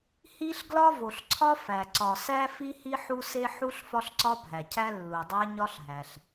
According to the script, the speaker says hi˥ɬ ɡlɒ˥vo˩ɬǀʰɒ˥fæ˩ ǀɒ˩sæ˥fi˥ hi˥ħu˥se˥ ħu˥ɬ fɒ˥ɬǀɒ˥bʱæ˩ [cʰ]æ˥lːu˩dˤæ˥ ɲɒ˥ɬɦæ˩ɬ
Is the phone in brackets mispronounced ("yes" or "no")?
no